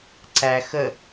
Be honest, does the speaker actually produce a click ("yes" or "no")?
yes